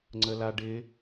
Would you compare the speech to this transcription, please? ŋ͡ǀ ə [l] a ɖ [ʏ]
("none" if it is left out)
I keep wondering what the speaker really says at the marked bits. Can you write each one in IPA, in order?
l, ɪ

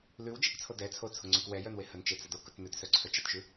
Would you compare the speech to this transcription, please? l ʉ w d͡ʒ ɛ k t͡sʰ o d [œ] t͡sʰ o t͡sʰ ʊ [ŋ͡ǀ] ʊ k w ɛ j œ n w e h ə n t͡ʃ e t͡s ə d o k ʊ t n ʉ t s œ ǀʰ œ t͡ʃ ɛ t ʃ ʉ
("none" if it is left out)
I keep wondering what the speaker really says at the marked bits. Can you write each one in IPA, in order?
ɛ, ŋ͡ǀ

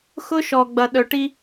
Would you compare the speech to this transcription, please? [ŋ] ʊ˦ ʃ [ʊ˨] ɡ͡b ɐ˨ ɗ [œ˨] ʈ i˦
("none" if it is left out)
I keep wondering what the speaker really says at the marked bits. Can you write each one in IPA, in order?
x, ɔ˨, œ˨

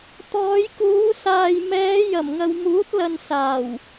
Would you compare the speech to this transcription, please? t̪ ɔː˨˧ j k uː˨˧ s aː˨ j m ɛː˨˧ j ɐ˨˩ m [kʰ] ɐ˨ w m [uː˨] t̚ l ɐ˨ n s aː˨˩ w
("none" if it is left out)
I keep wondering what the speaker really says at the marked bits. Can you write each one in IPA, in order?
ŋ, uː˨˥

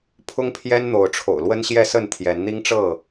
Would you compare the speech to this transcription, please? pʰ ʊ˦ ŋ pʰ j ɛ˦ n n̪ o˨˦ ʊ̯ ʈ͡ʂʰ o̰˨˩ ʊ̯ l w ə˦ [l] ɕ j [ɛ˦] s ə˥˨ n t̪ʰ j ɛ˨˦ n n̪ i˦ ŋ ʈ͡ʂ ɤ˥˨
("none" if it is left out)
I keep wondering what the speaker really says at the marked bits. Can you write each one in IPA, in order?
n, ɛ˥˨

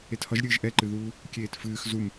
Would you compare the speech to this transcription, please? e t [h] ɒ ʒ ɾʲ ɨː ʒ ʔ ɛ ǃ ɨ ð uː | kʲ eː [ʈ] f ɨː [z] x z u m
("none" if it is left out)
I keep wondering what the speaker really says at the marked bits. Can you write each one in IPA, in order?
h, t, none

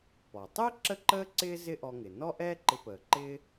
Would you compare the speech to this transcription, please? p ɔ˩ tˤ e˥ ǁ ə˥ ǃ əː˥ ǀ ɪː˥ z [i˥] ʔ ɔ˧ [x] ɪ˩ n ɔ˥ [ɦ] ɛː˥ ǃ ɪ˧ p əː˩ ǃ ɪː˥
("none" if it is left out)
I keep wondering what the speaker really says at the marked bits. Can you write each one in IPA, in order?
ɪ˥, ŋ, ʔ

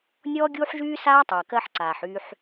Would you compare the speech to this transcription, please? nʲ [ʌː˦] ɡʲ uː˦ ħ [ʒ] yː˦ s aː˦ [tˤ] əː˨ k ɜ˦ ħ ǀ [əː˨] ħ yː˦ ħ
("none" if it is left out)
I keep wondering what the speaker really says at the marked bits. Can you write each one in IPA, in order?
ɔː˦, ʒ, tˤ, aː˨

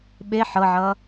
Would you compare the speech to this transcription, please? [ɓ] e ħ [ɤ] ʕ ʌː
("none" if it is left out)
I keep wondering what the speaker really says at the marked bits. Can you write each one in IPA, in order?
ɓ, ɤ

